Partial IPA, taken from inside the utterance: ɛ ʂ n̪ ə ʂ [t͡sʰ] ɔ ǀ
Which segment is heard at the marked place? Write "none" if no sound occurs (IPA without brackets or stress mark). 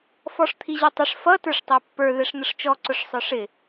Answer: t͡ʃ